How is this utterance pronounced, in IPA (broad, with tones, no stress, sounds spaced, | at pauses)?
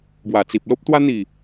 b w a˨˩ t͡s i˨ p̚ l o˦ p̚ t̪ w a˦ n̪ i˨˩